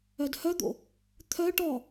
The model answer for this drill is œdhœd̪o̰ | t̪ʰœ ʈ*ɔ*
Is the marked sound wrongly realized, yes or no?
no